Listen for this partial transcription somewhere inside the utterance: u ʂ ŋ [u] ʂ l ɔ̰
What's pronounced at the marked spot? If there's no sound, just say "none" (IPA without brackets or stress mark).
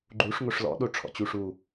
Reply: o